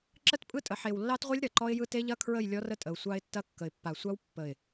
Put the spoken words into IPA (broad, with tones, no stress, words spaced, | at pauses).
ǁə˦tpʼɯ˦tʼə˨ ħe˨wlːɑ˦tʁʷe˦lʲ ɾɐ˨ǃɔ˦ɪ̯jɯ˦ te˦ʎɐ˦kʰɹə˦˨j lʲɔ˦rə˦tʼə˨ʊ̯ sʷɑ˦ɪ̯tːɐ˦ kːə˨ɪ̯pːa˨ sʷɑ˦w pːə˨ɪ̯